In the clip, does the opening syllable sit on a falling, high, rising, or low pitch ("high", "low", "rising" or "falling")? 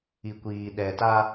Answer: low